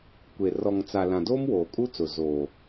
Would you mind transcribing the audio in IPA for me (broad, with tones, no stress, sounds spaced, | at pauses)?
kʷ e˨ r ɔ˨ ŋ t͡s a˨ l ã˨ d oː˦ m w oː˨ kʼ u˦ t͡s ʊ˨ z oː˨